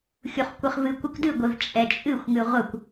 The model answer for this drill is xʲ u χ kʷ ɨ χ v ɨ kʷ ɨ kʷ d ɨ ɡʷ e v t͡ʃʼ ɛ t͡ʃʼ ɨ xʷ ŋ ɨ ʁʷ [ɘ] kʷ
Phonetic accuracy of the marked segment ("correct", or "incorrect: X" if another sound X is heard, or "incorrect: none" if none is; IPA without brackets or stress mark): correct